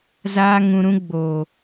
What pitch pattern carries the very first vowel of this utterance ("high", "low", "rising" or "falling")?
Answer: high